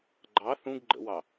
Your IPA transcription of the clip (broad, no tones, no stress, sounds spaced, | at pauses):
ɡ͡ǃ ɑ θ ũ ɡ ɡ͡ǃ ə̰ w ɑ